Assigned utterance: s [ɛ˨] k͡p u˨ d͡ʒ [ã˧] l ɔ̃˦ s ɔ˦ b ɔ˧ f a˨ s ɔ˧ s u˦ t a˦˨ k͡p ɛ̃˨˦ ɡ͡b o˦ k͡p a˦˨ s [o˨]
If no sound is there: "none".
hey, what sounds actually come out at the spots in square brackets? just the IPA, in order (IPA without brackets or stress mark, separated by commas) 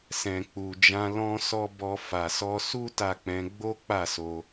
ɛ̃˨, ã˧, o˧